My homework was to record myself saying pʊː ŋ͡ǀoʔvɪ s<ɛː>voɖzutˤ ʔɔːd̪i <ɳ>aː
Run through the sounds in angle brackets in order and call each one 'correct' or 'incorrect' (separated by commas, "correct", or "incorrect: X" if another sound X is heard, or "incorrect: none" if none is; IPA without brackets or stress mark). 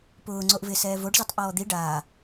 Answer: correct, incorrect: ɖ